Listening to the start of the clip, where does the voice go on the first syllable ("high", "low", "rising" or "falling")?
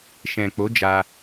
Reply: low